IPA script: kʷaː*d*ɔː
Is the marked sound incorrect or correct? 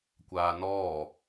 incorrect